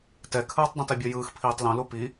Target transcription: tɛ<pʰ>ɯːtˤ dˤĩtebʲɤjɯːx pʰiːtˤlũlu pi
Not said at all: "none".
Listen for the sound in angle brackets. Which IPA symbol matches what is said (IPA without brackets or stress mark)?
kʰ